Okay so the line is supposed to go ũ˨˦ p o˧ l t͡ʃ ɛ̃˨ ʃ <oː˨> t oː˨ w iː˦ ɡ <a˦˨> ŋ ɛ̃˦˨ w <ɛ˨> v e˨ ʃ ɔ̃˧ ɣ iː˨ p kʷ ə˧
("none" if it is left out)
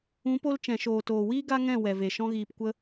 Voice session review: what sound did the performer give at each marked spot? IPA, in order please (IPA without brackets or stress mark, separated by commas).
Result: oː˨, a˦, ɛ˨